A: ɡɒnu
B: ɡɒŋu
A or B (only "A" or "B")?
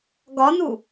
A